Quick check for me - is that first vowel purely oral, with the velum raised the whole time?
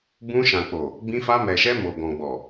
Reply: no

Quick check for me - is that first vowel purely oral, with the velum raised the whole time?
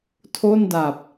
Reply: yes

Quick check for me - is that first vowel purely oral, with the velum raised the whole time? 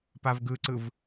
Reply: yes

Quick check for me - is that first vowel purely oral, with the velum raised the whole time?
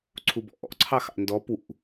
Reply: yes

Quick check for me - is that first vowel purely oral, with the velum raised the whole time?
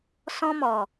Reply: no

